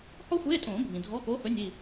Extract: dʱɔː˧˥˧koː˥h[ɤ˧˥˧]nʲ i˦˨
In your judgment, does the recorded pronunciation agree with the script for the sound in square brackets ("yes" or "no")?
no